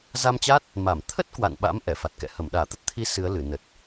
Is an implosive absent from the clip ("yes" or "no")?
no